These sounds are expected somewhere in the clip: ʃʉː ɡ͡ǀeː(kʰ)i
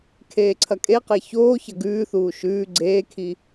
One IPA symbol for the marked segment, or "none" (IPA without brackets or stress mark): kʰ